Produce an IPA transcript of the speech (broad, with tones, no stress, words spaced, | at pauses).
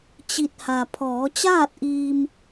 t͡ɕi˧t̚ ha˩ pʰɔː˩˧t͡ɕaː˥˨t̚ʔiː˧m